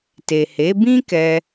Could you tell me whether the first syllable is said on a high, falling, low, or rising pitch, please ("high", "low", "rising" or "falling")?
low